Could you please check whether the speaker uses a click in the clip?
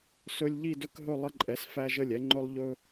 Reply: yes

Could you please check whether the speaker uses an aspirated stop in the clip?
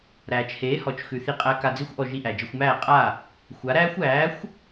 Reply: no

